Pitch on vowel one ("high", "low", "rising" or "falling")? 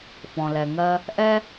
low